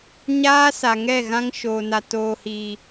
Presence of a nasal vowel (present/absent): present